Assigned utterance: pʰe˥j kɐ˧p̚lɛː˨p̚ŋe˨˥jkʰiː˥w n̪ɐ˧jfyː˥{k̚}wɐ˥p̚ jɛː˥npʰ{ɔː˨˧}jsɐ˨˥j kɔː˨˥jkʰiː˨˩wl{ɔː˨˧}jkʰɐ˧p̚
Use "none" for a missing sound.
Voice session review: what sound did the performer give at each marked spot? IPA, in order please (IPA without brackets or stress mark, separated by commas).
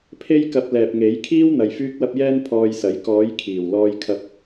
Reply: k̚, ɔː˧, ɔː˧